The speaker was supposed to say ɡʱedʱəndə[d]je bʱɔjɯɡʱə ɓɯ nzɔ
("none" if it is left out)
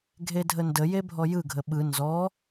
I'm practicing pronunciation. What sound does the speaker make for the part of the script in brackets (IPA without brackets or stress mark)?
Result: none